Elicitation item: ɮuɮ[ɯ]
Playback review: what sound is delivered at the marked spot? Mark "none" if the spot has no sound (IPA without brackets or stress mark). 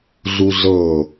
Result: ɤ